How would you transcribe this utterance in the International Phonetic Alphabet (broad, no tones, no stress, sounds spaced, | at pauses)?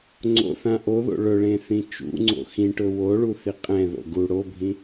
ŋ͡ǀ o̰ θ ã ʔ o ð o̰ ɭ ɵ ɭ ẽ θ ĩ t͡ʃ ṵ ŋ͡ǀ o̰ x ĩ ʈ ɵ w o ɭ u θ i qʼ ɛ̃ ð o̰ ɡ u ɽ o bʱ ĩ